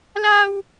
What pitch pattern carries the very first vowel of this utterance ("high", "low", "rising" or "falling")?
high